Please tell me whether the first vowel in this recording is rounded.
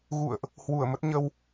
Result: yes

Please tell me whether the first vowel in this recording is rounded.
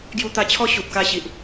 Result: yes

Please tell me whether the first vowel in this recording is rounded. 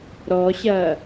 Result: yes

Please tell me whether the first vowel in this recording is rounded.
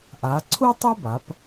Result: no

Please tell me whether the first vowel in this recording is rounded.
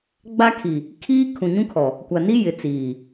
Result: no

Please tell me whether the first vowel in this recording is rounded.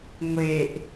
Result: no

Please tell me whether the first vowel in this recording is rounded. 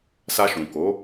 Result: no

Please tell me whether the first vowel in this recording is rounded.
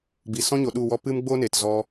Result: no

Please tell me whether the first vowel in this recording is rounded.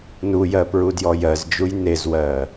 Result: yes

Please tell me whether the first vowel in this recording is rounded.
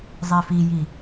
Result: no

